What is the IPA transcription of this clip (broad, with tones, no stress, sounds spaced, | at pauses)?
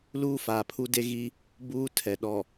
l uː˦ f aː˨ pʰ u˦ d e˦ ɣ i˦ | b uː˦ tʰ ɛ˨ ɗ ɔ˨